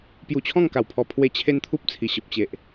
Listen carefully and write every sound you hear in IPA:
pju˧t͡ɕʰɔ̃˥˧ŋka˨˩wpʰɔ˧ pʰwe˧ t͡ɕʰe˦nt̪ʰu˦p̚t͡sʰi˨˩ ɕə˨p̚t͡ɕe˨ʔ

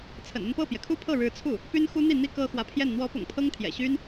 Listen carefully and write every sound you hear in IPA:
t͡sʰə̰˨˩nə˥˧npɤ˥˩pjɛ˩ kʰu˥˧pʰɤ˥˩ɻɻ̩˧˥t͡sʰu˥˩ | py˥nxu˥n̪i˥˩n̪i˥ kɤ˥xwä˧˥pʰjɛ˥˩n n̪wɔ˧˥pʊ̰˨˩ŋ pʰɤ˥ŋt̪ʰjɛ̰˨˩ ɕy˥n

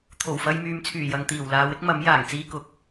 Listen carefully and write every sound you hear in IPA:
t̪ʰo˨˩wfɐ˧jmyː˨mt͡sʰyː˨˩ jɐ˨ŋt̪iː˨˩wlaː˨˧w ɪ˥k̚mɐ˨˥m jaː˨˩ŋt͡siː˧kʊ˨˥k̚

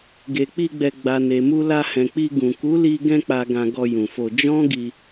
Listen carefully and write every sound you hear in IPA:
ɡe˨k͡pi˧ɡ͡bɛ˨ ɡ͡ba˨ne˨mu˧ la˧hɛ̃˨k͡pi˧ ɡũ˨ku˨˦li˧ ɡɛ̃˧k͡pa˨ɡã˨ ɡɔ˧jũ˨fo˧ d͡ʒɔ̃˦ɡi˧

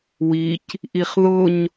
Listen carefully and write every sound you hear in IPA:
wic | ʔiχðʊɲ

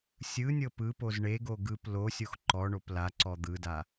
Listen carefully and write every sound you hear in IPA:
sʲɯnʲɤ pɯpoz ɳeɡo ɡɯp losʲox ǃɔɳop la ǀɔd̪ɯda

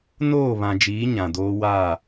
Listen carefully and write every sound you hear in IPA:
noː˦˨βã˨d͡ʒiː˨˦ ɲã˨doː˦ waː˦˨

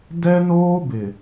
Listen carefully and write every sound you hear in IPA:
dɛ˦noː˦bɪ˨

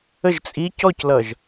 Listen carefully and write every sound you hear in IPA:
əʒ t͡sʼi cɔclʌʒ

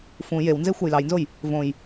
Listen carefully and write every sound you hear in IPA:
fũ jewnze xʷɑjlɑjnzoj | võj

